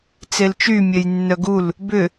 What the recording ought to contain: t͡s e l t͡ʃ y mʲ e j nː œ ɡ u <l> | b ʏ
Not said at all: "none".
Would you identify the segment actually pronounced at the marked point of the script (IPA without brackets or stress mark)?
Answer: l